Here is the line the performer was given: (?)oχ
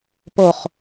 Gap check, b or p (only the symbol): p